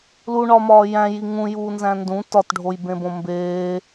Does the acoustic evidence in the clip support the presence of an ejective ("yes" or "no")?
no